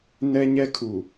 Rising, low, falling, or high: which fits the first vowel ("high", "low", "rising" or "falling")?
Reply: high